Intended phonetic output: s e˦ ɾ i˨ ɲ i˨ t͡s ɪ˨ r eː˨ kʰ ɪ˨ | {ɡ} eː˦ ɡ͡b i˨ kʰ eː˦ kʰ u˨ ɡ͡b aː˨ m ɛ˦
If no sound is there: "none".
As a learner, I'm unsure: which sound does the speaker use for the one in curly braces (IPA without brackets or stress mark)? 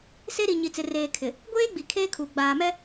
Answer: ɡʷ